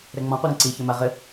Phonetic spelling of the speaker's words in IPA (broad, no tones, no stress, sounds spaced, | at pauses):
ɾ ɛ ŋ͡m ɔ̃ qʷ i ɾ ẽ ǀ i ç ɘ m a ʁ ɘ